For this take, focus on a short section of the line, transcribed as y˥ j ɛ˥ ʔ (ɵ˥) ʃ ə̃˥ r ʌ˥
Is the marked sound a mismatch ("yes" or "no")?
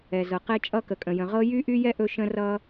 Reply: no